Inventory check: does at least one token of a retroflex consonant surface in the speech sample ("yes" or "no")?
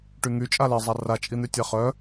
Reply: yes